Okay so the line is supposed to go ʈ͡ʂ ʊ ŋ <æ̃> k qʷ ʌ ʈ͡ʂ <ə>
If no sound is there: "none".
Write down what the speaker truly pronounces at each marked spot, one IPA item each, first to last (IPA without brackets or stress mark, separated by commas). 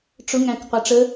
æ̃, ə